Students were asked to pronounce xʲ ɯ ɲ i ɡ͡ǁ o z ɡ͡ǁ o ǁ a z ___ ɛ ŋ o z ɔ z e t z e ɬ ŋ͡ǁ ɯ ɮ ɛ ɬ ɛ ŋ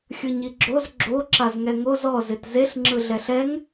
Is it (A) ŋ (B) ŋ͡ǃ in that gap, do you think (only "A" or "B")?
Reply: A